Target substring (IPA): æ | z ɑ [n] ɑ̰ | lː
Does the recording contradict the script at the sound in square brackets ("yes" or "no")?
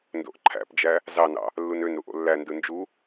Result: no